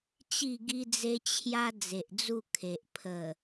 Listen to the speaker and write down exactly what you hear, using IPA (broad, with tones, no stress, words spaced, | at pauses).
t͡ɕi˥˧ɡi˦d͡ze˦ t͡ɕʰja˦ d͡ze˨ʔd͡zu˥˧kʰe˨ʔ pʰə˨˩